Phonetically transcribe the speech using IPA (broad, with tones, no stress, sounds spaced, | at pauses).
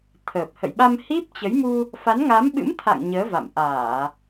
t̪ʰ əː˨˩ p̚ h ə̰˧˨ j ɓ a˧ m h i˦˥ p̚ t͡ɕ ə˨˦ j m u˧ | f a˨˦ n ŋ a˨˦ m ɓ ɨ̰˧˥ m t̪ʰ a̰˧˨ ŋ ɲ əː˨˦ v a̰˧˨ m ʔ aː˧˩˨